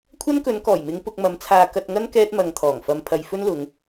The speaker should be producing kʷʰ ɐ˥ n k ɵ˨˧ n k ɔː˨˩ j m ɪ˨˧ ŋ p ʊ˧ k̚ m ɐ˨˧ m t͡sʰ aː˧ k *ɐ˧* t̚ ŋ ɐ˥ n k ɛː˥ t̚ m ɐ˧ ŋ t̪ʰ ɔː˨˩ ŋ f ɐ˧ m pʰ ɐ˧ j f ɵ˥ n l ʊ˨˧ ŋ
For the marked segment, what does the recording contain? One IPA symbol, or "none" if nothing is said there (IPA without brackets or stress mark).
ɐ˧